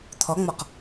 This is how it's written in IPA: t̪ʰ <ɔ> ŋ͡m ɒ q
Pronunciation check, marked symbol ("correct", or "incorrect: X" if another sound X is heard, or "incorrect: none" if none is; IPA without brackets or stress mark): correct